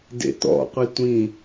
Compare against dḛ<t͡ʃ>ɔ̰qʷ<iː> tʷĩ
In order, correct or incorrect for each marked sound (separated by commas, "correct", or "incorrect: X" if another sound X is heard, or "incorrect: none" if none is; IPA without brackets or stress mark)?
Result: incorrect: t̪, incorrect: i